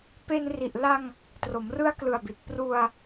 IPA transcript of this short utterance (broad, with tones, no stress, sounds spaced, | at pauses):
p e˧ n r i˨˩ ʔ l a˧ ŋ | t r o˩˦ m r ɯ˦˥ a̯ k l ɯ˨˩ a̯ b i˨˩ t̚ p r u˧ a̯